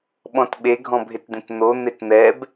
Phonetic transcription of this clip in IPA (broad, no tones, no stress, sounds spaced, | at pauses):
ɓ ɔ̃ t ɓ e ɡʱ ɔ̃ bʱ ɪ t d̪ ẽ t n̪ o n̪ e t n̪ ɛ b